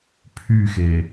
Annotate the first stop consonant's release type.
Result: aspirated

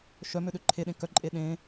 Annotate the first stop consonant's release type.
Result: implosive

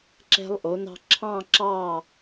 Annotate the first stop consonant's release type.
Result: click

